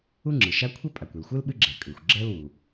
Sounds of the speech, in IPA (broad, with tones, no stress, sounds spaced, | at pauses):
u˥ ŋ͡ǁ ɨ˩ ʃ a˥ kʷʰ ɛ˥ pʼ a˩ kʷ ɨ˩ l xʷ ɯ˥ l ɓ ɨ˥ ɡ͡ǁ ɛ˩ kʼ ɯ˩ xʷ ɡ͡ǁ ɛ˥ l w u˩